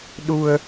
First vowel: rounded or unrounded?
rounded